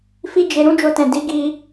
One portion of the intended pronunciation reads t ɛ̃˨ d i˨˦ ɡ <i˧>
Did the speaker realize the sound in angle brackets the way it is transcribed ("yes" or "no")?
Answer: yes